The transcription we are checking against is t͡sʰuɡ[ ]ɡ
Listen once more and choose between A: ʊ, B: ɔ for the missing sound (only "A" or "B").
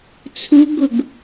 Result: A